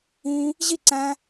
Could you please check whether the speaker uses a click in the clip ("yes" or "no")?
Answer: yes